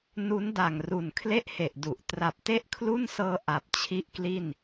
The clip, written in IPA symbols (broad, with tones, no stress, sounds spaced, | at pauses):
n u˦˥ n d a˨˩ ŋ r u˨˩ n kʰ l e˥˩ ʔ h e˨˩ ʔ d u˨˩ ʔ t r a˨˩ p̚ t e˥˩ ʔ kʰ l u˥˩ n s ɤː˧ ʔ a˨˩ p̚ t͡ɕʰ i˥˩ ʔ k l i˥˩ n